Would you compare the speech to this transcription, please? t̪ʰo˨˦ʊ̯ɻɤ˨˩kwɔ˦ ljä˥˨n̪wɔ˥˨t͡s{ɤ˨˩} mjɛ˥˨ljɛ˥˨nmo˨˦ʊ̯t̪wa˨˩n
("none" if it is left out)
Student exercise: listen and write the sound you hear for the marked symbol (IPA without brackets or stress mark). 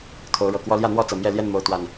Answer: ɤ˨˩